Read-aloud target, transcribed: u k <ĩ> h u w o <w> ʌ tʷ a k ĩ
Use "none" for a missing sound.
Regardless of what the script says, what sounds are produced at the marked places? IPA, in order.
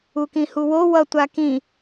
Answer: ĩ, w

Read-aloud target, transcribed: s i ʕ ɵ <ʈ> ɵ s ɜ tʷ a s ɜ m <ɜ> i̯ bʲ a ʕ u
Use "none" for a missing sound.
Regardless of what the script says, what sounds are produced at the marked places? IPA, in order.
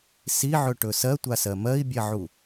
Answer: ʈ, ɜ

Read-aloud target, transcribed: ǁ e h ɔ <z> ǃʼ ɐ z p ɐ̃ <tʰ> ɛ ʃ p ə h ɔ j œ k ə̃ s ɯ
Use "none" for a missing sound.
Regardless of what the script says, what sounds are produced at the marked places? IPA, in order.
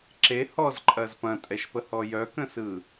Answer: z, tʼ

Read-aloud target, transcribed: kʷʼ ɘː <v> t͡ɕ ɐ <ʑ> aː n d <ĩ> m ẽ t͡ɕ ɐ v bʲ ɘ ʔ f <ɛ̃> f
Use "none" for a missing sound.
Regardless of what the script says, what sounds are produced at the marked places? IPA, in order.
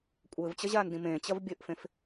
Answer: v, ʑ, ĩ, ẽ

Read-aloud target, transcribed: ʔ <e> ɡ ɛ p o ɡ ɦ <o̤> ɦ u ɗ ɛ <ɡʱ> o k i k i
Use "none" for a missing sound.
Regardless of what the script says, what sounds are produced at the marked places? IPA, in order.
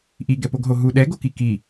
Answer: i, o, ɡ

